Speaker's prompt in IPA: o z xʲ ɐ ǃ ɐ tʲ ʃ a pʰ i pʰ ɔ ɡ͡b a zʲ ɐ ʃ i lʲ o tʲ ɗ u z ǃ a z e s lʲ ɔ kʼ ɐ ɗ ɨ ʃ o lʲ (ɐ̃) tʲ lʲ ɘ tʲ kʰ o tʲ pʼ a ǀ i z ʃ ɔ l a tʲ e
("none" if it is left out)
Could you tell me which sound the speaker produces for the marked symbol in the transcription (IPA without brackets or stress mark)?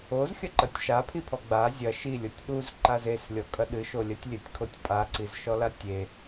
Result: ɐ